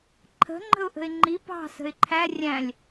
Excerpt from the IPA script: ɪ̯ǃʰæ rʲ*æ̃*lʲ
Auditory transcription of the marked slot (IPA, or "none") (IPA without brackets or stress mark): æ̃